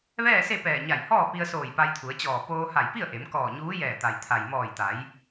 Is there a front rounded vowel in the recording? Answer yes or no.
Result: no